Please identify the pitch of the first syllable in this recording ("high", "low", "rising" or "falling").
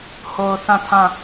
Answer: low